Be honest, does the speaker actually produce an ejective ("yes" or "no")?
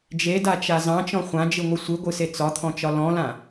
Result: no